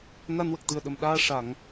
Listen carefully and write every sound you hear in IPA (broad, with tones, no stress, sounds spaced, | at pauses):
n a˧ n w ə˨˩ k̚ t̪ ɨ˨˩ ə̯ ɗ ə˨˩ m ɗ aː˧ ʂ a˨˩˨ ŋ